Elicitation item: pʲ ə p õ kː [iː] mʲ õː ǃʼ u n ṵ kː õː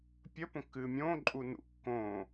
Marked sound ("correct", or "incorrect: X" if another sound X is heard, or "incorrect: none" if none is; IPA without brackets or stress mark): incorrect: ɨː